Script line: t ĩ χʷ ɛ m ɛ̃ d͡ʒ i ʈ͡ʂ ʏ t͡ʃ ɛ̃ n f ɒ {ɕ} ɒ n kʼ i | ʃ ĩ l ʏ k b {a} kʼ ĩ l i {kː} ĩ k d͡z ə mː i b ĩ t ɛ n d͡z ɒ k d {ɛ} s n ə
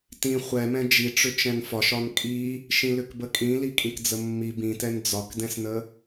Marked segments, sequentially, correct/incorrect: incorrect, incorrect, incorrect, incorrect

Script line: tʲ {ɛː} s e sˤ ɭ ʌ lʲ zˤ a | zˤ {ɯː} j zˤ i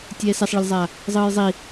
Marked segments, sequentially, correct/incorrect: correct, correct

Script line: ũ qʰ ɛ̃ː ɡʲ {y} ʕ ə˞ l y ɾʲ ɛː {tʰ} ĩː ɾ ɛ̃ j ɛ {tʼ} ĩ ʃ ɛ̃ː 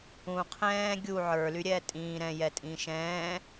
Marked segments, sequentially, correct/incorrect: incorrect, incorrect, correct

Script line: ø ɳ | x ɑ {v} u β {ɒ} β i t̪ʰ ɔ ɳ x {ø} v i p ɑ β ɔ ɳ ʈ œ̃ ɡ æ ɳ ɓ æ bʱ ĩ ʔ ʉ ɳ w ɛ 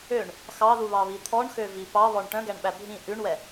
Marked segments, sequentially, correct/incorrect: incorrect, incorrect, correct

